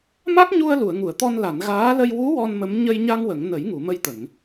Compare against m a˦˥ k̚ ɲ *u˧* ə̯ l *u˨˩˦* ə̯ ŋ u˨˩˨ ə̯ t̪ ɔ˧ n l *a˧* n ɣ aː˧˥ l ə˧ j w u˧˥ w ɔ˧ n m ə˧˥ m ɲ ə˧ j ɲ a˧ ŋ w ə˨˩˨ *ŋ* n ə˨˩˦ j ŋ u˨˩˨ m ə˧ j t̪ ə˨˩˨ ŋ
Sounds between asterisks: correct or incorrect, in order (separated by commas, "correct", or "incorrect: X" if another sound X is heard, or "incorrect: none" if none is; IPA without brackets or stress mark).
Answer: correct, incorrect: u˨˩˨, incorrect: a˨˩˨, correct